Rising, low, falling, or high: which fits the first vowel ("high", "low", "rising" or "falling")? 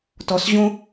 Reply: low